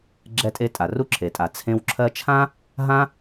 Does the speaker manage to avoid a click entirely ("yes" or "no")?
no